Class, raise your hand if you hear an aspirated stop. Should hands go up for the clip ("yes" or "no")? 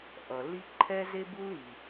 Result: yes